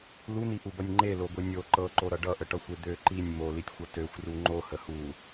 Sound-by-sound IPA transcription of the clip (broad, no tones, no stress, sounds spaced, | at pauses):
l u n̪ i ʔ u b ʌ nʲ ŋ͡ǃ e l o ɡʷ i nʲ o ǃ ɤ ǃ o ɾ ʌ ɖ ʌ ʔ ə ʈ ʌ xʷ e d̪ ø ǃ i nʲ m o l i tʲ xʷ ʌ t ø xʷ r u ŋ͡ǃ o h ə h u